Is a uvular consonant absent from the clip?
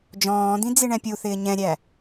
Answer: yes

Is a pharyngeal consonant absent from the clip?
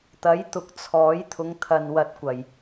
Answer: yes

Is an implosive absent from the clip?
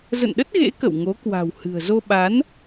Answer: no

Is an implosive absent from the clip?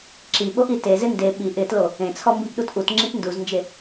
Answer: no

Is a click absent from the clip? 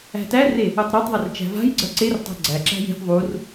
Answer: no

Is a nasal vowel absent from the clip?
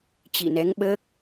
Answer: yes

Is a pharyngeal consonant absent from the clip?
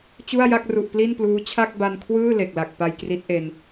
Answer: yes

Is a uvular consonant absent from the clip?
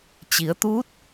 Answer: yes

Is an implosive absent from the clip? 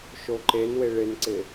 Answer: yes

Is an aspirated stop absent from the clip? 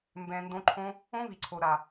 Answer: no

